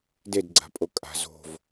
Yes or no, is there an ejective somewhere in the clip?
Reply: yes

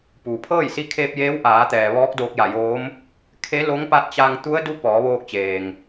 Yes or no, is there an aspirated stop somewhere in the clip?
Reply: yes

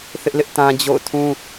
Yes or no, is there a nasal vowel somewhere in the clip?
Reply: yes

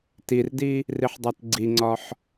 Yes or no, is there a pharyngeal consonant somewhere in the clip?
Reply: yes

